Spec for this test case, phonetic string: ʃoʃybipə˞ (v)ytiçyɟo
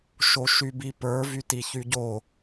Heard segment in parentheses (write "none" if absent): v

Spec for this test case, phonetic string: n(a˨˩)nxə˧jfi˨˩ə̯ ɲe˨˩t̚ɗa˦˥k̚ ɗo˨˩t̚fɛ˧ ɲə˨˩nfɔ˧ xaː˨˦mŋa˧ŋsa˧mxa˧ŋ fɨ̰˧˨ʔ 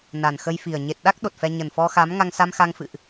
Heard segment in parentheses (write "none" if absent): a˨˩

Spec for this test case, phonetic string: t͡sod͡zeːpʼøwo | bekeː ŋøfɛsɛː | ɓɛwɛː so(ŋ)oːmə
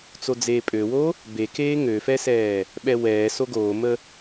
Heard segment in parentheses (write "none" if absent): ɡ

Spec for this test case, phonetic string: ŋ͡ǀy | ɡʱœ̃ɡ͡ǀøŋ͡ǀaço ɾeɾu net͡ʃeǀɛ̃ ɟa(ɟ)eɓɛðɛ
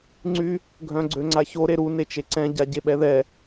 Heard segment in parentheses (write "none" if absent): ɟ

